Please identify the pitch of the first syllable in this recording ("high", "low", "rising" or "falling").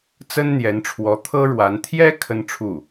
high